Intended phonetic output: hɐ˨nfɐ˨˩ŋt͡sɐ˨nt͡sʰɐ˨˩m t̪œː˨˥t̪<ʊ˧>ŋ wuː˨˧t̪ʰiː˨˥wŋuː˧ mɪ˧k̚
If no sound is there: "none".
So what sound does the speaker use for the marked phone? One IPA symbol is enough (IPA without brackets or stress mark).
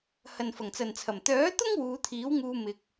ʊ˥